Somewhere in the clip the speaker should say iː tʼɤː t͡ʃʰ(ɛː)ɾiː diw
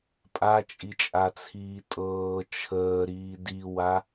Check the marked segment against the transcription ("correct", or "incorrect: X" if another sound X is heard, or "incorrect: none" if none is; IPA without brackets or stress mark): incorrect: əː